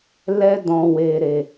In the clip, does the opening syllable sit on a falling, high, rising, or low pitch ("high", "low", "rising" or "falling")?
high